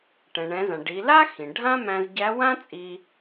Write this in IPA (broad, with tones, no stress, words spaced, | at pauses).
ʈɛ̃˩ɳɛ̃˩˧zã˩ ɖi˩˧la˥ xĩ˩ɖʱã˥mæ̃˧zɟæ˧˥ wã˥t͡sʼi˧